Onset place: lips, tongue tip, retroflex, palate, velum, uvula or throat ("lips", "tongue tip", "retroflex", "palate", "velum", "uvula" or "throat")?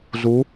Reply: tongue tip